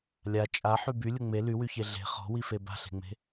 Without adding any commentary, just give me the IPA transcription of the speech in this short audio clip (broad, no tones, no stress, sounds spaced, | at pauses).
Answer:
lʲ a t͡ʃʼ a ħ y b y lʲ ʊ ŋ͡m e l y w y ç e ɮ e̤ χ ɔ̤ w i f e b a̤ ɬ e̤ ŋ͡m e̤